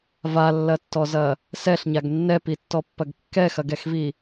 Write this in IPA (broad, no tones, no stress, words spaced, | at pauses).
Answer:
valːɐtːɔzɐ | sɛɬɲaɡ nːɛpitːɔpːɐɡ kːɛxɐɡɛxvi